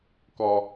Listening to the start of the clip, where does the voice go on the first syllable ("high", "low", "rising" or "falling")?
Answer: high